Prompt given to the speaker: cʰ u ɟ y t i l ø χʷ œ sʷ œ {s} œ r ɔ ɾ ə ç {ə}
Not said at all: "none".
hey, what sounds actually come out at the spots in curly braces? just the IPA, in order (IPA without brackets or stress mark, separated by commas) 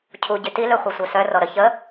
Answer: s, ə